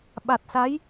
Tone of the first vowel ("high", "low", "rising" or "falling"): low